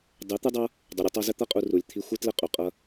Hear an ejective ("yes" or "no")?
yes